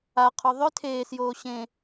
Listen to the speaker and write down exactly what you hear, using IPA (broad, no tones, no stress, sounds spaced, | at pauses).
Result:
a qʰ ɔ ðˤ ʏ tʰ eː s j oː ɕ ẽ